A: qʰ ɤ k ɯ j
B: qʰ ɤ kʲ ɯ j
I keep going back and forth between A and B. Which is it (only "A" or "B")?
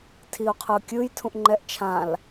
B